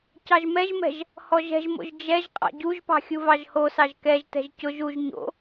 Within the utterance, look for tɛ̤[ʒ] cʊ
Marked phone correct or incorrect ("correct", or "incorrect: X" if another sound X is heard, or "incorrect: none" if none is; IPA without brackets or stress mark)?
correct